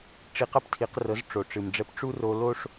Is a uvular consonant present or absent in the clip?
present